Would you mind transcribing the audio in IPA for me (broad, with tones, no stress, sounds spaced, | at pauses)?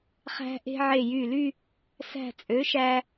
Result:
χ æ̤˧ ʔ e̤˧ ʕ e˧˩ j y˧˩ l y˥˧ | s æ̤˧˩ t͡sʼ ø˩˥ ʃ æ˧